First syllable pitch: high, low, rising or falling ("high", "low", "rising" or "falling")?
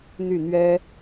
falling